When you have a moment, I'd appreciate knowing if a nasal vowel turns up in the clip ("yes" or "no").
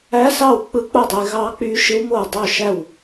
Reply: no